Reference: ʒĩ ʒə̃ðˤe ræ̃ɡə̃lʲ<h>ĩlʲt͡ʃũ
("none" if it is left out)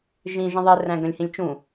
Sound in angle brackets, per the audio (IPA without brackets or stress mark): h